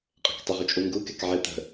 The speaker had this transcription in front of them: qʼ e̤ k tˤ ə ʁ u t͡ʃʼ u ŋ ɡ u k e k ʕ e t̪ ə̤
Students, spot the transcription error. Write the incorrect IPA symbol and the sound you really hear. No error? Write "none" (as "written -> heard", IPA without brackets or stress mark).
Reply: none